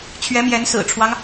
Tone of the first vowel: rising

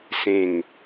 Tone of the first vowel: falling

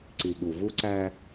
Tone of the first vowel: low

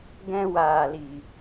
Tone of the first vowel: high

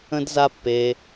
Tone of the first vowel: high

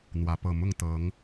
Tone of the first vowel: rising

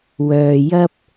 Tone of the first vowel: low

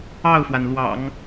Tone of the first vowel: falling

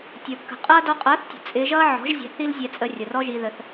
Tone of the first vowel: low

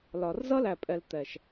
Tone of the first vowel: low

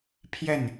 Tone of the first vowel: falling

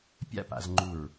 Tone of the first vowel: high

